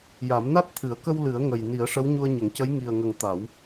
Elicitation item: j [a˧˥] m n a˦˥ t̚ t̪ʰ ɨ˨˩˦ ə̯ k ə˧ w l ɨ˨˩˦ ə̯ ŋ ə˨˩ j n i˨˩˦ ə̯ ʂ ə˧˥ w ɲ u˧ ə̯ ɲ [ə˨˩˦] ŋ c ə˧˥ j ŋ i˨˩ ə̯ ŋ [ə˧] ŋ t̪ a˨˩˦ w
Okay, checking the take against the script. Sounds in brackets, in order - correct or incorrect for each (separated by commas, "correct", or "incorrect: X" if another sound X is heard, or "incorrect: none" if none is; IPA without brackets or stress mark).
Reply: incorrect: a˨˩˦, correct, incorrect: ə˨˩